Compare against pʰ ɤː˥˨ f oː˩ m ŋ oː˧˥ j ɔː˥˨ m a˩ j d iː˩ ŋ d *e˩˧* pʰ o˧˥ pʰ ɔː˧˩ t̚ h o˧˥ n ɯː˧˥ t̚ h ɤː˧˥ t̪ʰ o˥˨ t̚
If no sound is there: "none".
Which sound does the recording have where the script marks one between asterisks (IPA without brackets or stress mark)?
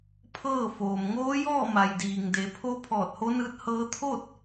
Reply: e˩˧